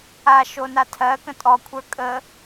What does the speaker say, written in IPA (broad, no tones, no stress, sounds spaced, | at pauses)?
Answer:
a ʃ o n a tʰ ɜ k ə̃ tʼ ɔ kʷʰ ə˞ kʼ ə